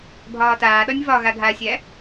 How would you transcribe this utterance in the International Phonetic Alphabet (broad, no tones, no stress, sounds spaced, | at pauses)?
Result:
bʱ ɒː t aː ɗ ɒ nʲ v ɒ ɣ a ɡʱ a sʲ æ